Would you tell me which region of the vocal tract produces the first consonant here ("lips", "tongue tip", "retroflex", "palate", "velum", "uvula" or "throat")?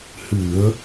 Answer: throat